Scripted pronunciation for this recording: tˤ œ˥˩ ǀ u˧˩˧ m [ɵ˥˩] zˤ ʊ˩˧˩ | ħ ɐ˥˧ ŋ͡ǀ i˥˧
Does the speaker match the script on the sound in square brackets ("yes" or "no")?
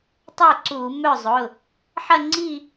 no